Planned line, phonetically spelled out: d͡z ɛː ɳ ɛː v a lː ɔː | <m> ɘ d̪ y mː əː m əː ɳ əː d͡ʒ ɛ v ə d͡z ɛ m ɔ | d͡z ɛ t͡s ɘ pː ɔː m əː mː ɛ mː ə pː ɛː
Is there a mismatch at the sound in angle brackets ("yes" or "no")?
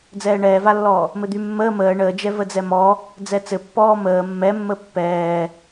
no